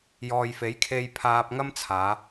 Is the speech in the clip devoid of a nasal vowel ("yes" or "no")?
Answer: yes